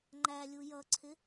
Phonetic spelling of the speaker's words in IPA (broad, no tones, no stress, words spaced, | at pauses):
ŋ͡ǃælʲu jʌǀʰɪ